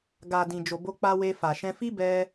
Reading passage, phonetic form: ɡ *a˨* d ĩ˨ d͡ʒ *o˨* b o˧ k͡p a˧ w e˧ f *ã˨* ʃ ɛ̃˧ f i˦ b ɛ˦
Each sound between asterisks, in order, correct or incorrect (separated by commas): correct, correct, incorrect